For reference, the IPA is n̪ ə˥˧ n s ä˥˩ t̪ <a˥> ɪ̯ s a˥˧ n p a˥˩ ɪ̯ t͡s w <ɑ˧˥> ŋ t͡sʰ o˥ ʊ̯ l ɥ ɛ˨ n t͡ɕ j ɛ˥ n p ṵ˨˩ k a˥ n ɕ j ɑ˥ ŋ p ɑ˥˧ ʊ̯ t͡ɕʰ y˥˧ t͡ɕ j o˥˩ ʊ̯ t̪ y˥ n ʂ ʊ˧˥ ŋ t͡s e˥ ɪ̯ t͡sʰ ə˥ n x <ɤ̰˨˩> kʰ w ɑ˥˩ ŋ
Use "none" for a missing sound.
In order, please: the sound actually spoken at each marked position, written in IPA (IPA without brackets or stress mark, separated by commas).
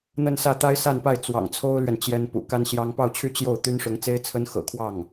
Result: a˥, ɑ̰˨˩, ɤ̰˨˩